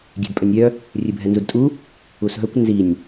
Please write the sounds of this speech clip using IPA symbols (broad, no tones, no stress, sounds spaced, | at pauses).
ɡʲ e̤ d pʼ œ nʲ ɾʲ œ | rʲ ɨ bʱ ɛ n z u d tʼ u | u s ɦ œ kʷ n z i nʲ